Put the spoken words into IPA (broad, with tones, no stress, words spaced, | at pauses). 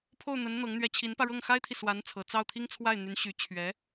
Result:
pʰo˥˩ʊ̯n̪ə˧˥n n̪ɤ˧˥ŋ n̪ɥɛ˧˥t͡ɕʰi˧˥npä˧ɻɤ˥˩ŋ xa˥ɪ̯t̪ʰi˨ swa˧˥nt͡sʰɤ˨˩ t͡sɑ˥˩ʊ̯t̪ʰi˥ŋt͡sʰwa˥˩ɪ̯n̪y˧˥n ɕy˧˥ t͡ɕʰɥɛ˧˥